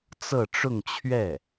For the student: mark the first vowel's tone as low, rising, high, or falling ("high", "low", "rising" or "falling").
falling